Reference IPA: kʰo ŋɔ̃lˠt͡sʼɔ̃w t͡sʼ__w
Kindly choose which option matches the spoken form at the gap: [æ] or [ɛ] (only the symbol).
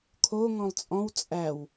æ